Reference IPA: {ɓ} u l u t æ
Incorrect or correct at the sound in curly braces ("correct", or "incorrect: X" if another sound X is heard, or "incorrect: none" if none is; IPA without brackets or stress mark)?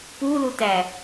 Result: incorrect: p